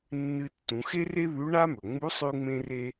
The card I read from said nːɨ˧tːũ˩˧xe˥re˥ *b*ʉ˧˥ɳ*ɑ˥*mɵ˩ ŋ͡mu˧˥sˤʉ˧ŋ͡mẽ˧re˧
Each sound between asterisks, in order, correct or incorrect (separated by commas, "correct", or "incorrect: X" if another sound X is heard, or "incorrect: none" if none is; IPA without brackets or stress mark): incorrect: β, incorrect: a˥